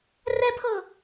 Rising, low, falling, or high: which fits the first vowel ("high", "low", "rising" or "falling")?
high